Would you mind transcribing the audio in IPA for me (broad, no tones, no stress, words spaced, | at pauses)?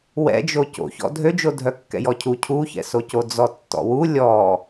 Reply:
wɛ̰d͡ʒo co̰çɔ̰ dʱød͡ʒo dʱœkːɛ̰jɔcʰu cʰuçɛ̰soco d͡zɔtːɔ̰wu lʲɔ